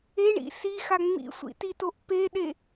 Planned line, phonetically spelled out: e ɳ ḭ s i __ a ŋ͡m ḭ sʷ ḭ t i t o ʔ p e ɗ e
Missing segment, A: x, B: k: A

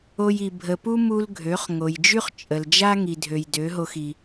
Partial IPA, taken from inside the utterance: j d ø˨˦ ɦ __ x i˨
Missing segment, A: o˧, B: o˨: A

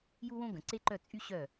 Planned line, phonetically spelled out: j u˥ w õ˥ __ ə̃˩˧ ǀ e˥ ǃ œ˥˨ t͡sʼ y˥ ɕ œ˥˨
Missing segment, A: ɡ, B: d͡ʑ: A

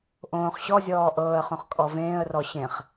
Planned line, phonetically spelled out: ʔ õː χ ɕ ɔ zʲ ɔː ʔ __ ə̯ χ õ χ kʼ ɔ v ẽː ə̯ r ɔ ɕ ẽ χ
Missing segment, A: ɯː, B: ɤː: B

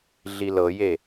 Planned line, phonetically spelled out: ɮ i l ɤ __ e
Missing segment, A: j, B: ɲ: A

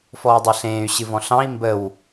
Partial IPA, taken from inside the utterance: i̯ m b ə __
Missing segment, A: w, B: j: A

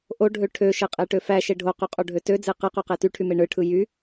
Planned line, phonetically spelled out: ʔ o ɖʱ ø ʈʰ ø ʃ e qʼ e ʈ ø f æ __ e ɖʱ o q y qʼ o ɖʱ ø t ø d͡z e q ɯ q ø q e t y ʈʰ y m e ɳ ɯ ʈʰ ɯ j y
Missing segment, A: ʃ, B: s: A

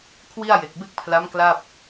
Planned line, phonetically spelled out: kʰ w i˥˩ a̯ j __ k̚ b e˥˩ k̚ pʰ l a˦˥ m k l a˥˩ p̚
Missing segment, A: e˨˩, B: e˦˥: A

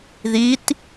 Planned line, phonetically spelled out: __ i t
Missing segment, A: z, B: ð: B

